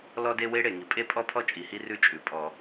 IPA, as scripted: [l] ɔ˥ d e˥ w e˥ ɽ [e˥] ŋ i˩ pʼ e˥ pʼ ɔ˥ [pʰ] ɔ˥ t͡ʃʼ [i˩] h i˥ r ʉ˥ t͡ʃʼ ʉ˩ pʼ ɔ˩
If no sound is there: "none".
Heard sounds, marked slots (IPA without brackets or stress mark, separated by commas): l, e˩, pʰ, i˩